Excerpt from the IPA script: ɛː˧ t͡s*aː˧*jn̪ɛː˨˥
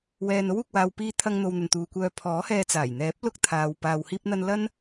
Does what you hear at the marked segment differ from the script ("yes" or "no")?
yes